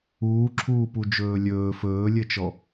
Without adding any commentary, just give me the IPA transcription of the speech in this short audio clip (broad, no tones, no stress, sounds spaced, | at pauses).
uː ǁʰ uː p u d͡ʒ ɵː lʲ ɵː f ɵː lʲ ɘ t͡ʃ ɔ